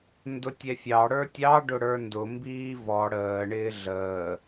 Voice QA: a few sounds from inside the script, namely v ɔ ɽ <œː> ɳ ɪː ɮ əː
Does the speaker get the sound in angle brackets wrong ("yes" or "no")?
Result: yes